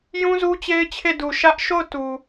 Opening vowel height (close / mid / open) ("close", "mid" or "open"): close